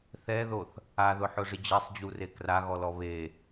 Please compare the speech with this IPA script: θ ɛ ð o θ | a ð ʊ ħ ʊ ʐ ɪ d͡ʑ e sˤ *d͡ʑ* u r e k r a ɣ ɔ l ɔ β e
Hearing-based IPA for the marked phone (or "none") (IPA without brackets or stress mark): d͡ʑ